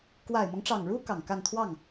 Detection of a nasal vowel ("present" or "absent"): absent